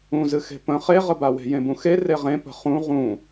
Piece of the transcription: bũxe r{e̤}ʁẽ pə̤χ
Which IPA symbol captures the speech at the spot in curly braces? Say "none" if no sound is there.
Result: e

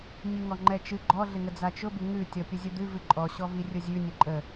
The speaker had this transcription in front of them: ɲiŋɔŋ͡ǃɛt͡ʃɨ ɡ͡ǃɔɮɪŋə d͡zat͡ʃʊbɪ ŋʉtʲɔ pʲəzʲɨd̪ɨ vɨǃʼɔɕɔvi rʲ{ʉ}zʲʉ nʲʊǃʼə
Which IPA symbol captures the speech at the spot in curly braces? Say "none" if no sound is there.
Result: ʊ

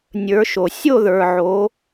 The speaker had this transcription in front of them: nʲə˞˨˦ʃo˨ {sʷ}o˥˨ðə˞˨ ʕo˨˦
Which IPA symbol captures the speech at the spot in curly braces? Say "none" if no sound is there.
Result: sʲ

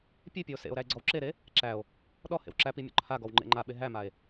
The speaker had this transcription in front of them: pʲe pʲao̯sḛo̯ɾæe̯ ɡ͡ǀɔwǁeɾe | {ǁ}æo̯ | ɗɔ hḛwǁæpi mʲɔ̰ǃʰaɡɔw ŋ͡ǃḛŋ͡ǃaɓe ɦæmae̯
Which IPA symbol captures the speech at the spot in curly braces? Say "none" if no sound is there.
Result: ǁ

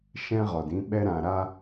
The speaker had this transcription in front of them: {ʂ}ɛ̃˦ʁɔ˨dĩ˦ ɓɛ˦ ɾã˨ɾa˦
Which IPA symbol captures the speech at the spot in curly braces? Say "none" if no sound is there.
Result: ʃ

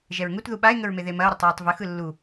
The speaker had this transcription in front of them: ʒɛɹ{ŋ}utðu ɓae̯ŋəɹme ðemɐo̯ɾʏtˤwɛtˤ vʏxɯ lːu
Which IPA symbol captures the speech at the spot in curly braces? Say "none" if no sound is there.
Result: ŋ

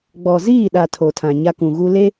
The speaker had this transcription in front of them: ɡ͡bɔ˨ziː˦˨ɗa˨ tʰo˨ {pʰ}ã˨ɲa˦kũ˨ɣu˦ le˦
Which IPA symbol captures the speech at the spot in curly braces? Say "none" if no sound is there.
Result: tʰ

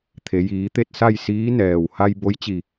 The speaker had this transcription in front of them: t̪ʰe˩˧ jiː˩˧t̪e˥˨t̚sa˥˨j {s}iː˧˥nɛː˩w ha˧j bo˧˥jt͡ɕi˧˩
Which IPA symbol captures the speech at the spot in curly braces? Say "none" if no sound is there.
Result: s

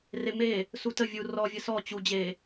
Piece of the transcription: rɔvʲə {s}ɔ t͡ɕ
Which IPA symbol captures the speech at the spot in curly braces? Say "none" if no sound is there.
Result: s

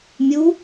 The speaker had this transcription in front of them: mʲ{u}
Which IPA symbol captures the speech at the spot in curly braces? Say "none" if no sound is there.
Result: u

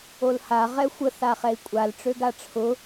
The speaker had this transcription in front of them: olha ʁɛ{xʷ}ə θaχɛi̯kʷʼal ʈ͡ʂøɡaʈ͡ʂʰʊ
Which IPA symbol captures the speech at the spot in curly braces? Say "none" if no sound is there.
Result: xʷ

